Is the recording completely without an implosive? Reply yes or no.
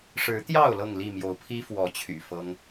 yes